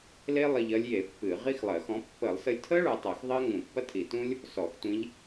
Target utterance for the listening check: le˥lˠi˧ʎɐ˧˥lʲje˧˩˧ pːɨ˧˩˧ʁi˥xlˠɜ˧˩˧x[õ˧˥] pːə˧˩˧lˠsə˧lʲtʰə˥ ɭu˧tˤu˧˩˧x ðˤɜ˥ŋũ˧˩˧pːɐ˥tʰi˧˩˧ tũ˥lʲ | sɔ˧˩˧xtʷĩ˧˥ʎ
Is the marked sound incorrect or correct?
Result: incorrect